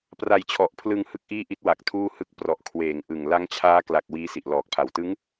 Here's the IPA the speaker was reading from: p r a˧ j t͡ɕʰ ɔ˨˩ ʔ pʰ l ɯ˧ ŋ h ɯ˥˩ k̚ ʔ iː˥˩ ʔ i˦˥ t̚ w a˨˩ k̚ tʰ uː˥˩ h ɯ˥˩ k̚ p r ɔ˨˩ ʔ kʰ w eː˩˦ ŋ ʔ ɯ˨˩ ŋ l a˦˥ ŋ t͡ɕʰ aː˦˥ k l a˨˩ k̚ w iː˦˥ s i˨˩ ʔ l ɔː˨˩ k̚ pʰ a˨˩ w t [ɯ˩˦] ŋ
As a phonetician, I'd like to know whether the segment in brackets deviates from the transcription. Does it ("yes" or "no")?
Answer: yes